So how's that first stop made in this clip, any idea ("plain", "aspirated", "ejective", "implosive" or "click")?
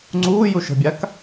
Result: click